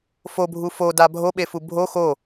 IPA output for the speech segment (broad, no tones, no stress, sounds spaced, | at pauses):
f o bʱ u f o d a bʱ o ɓ e f u bʱ o x o